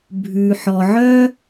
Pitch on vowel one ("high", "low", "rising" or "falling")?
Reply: low